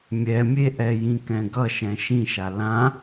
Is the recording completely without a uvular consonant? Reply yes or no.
yes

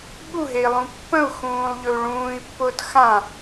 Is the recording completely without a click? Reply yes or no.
yes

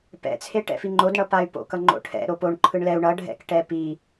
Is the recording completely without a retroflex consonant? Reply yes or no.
no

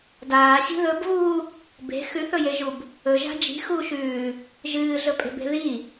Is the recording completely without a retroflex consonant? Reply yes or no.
yes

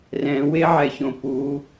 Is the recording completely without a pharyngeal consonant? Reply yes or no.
no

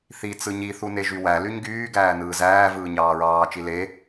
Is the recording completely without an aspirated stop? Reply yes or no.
yes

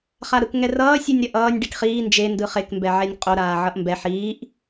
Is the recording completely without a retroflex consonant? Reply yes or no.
no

